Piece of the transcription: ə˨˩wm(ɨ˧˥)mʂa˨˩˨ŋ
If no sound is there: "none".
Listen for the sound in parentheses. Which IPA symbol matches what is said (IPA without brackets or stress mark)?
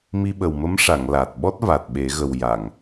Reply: ə˧˥